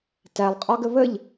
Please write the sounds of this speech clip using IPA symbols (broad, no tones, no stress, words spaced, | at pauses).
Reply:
tælˠqʼɒɡə βəʎ